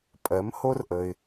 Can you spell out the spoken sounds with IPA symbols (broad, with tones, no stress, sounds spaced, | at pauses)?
pʼ ɜ˩˥ m h o˥ r ʔ ə˩ ɪ̯